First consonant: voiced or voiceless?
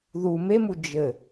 voiced